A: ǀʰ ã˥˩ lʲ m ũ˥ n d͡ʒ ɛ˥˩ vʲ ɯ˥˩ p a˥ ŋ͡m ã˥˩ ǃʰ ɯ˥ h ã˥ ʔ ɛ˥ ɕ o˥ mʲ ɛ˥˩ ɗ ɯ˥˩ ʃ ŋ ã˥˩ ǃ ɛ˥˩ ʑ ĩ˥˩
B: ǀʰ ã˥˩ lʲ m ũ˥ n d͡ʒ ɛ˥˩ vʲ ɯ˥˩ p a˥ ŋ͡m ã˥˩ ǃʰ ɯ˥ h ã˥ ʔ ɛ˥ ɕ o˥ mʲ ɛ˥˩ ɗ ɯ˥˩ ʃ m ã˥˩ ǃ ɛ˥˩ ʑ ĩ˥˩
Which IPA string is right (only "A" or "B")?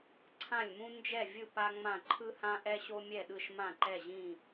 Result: B